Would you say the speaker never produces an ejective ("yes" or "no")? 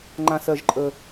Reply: no